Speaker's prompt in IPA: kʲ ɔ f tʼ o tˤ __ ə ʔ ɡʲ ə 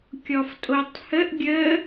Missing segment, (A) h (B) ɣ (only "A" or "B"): A